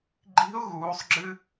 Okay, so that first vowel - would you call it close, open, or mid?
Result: close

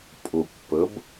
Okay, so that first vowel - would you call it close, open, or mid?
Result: close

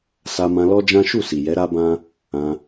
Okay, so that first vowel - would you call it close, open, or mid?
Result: open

